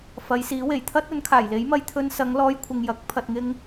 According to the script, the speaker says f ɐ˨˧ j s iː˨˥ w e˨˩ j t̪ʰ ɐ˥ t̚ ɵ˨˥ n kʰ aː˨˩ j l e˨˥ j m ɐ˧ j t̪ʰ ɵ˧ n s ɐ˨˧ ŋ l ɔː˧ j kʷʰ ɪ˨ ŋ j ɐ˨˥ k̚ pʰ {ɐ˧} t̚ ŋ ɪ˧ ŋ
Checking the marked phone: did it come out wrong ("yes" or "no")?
yes